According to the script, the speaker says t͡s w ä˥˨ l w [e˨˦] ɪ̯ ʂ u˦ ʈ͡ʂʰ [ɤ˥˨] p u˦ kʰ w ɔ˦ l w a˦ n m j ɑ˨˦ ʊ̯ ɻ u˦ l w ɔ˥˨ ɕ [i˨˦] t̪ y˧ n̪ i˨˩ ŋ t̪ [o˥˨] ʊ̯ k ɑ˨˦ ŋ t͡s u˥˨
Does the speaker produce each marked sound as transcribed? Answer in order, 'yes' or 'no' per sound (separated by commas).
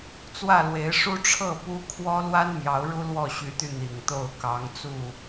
yes, yes, no, yes